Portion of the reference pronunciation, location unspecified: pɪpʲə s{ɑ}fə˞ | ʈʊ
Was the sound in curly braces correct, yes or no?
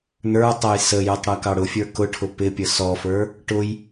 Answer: no